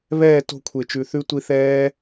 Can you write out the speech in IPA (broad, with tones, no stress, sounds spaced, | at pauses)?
β ɛː˦˨ t o̤˧ kʷʰ e˨ t͡ʃ ʉ˨ θ ʉ˦ tʷ i˧ θ ɛː˦